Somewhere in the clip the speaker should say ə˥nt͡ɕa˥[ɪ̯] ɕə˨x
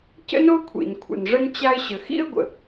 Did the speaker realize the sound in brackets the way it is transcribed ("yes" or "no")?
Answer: yes